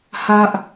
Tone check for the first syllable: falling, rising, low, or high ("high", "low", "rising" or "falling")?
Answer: high